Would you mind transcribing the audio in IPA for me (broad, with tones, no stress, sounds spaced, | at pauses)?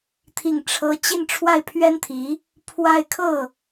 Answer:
t̪ʰ i˥˩ ŋ ʈ͡ʂʰ ɤ˥ t͡ɕ i˥˧ n ʈ͡ʂʰ w a˥˩ ɪ̯ pʰ ɥ ɛ˥ n t̪ʰ i˧˥ | pʰ w a˥˧ ɪ̯ kʰ ɤ˥˩